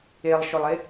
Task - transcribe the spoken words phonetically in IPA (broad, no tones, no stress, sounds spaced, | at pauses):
e lˠ ʃ o lˠ e